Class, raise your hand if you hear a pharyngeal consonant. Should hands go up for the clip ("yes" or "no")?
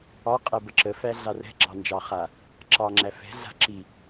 no